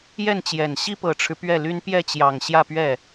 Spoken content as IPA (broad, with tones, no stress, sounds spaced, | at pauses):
j ɛ˥˩ n t͡ɕ j ɛ˨˩ n ɕ i˥ p ɤ˨˩ ʈ͡ʂʰ ɻ̩˦ p ɥ ɛ˥˩ l y˥ n p j ɛ˥˩ t͡ɕ j ɑ˨˩ ŋ ɕ j ä˥˧ p ɥ ɛ˥˩